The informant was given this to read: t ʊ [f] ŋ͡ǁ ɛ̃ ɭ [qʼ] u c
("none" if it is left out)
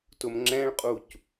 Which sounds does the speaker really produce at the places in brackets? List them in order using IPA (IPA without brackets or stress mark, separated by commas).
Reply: m, qʼ